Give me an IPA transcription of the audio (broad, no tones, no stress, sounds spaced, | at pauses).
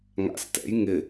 ŋ a̰ s t ɛ̰ j ŋ ɪ